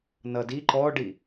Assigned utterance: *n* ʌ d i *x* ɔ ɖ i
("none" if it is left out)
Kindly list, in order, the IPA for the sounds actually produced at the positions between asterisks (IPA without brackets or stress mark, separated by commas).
n, ǃ